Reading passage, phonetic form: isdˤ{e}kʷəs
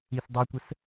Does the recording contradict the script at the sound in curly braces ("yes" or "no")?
no